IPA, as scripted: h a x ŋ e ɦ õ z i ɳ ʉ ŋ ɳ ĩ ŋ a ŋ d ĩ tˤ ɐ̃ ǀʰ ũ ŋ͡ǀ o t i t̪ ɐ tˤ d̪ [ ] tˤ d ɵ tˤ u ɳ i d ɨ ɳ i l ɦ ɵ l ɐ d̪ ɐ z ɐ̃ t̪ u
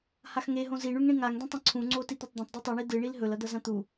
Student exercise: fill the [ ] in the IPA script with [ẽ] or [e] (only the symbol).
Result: ẽ